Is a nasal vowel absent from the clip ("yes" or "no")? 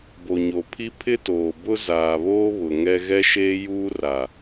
yes